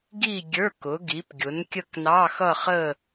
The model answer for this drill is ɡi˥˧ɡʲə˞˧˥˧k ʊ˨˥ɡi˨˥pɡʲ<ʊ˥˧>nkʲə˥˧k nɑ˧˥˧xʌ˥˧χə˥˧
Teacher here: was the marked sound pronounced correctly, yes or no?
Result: no